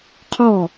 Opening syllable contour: falling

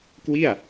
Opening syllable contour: falling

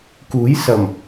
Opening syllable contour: rising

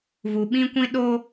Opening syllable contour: low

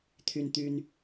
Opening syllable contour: high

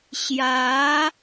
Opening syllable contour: rising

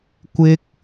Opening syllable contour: high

